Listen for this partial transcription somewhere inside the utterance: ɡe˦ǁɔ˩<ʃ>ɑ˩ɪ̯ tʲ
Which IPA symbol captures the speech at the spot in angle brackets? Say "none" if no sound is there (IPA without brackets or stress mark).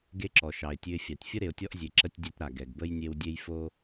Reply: ʃ